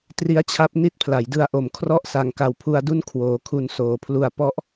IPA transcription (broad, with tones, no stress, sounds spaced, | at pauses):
t r i˦˥ a̯ t͡ɕʰ a˦˥ p̚ n i˦˥ t̚ pʰ l a˩˦ j d ɯ˧ a̯ ʔ o˨˩ m kʰ r ɔ˦˥ ʔ s a˨˩ ŋ k a˨˩ w pʰ u˧ a̯ d u˥˩ n kʰ w oː˨˩ kʰ u˧ n s oː˩˦ pʰ l u˧ a̯ p ɔ˦˥ ʔ